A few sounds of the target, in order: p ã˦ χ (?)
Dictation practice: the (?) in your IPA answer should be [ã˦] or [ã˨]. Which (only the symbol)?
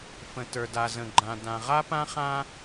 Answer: ã˦